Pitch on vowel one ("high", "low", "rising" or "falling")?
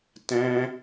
high